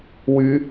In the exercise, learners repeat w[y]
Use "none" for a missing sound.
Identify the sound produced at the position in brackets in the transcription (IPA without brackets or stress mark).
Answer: y